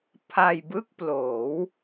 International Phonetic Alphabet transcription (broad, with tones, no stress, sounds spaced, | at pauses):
pʰ a˧ j b ɯ˥˩ k̚ p l oː˩˦ w